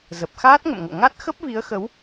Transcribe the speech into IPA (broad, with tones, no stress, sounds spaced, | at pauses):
z ə˨˩ p̚ x aː˦˥ t̚ ŋ ə̰˧˨ m ŋ o̰˧˨ ŋ a˦˥ t̚ x ə˦˥ p̚ v i˨˦ ə̯ x ə˨˦ w